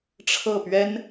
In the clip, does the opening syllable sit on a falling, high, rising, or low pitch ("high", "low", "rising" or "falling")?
falling